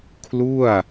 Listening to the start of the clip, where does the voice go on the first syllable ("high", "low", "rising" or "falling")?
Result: falling